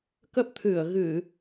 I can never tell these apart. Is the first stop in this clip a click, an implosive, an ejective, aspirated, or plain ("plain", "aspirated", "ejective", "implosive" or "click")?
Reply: plain